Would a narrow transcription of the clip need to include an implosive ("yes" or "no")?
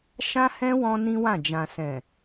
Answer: no